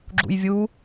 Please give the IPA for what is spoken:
ɡ͡ǁṵjvʲu

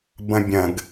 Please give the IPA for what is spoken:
bɐ̃bʲɐ̃ɡ

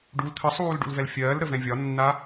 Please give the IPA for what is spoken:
ɖul t̪ʰəsˤuːlɖṵlvɛl fʲɜːlɾəvɛ̃ vʲɒnːa

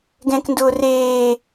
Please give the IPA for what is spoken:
ɡɛ̃kndʊː reː

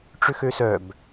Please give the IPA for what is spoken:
ʈ͡ʂʏxøsœb

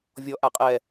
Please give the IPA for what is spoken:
vʲɔ ʔaqʼɛ

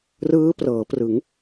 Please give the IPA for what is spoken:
rɯː˦˥prɤː˩˦prɯ˩˦ŋ

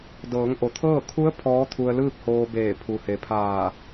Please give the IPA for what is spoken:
dɤː˩˧ŋʔo˩t̪ʰɤː˥˨ kʰu˧˥ə̯ pʰɔː˧˥t̪ʰu˧ə̯lɯː˥˨k̚ hoː˧beː˧˩ pʰu˩he˩pʰaː˧˩

